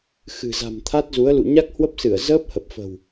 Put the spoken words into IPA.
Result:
x ɨ̤˨˩ z a̤˨˩ m t̪ʰ a˦˥ t̚ z u˨˦ ə̯ l ṵ˧˨ ɲ a˦˥ k̚ h w ə˦˥ p̚ s ɨ˧˩ ə̯ z əː˦˥ p̚ h ə˨˩ p̚ f ə̤˨˩ w

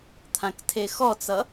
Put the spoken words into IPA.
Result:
t̪ʰ ã k tʰ e x ɔ t͡s ʌ

